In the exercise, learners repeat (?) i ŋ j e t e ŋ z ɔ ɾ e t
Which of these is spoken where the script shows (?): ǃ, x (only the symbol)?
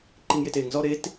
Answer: ǃ